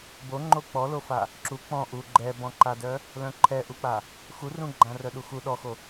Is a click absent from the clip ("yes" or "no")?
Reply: no